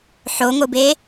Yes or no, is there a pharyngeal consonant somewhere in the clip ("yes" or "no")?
yes